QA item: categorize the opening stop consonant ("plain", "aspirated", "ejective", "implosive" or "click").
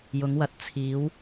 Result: plain